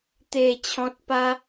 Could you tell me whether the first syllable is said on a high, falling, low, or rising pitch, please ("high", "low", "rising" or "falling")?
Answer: low